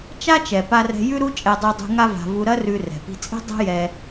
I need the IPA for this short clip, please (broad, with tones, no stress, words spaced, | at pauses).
t͡ʃa˥t͡ʃɛ˩ pa˧rɛ̤˧ jʉ˥ɾu˥ t͡ʃʼɛ˧dˤu˧dˤṳ˧ ŋa˥va̤˧ vu˧ɾɐ˥rʉ˧ rɛ̤˩pi̤˧t͡sʼi̤˥ dˤɛ̤˥jɛ˧